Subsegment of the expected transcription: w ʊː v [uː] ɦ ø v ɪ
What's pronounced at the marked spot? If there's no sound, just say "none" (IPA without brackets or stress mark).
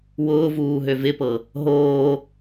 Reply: uː